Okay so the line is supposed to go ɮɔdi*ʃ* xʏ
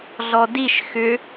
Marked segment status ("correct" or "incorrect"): correct